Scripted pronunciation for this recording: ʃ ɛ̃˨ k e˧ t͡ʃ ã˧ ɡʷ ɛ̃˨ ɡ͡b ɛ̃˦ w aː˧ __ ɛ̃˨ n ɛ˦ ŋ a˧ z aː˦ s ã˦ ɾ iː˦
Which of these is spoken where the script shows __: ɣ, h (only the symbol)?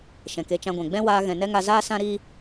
ɣ